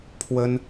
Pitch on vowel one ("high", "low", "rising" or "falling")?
high